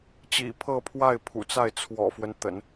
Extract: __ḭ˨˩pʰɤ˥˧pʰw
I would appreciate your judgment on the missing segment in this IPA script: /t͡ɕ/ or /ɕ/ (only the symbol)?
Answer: t͡ɕ